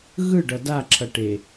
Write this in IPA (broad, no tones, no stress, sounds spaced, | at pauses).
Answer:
ɣ ɯ ɖ ʌ d a ǁʰ ʌ ʈ e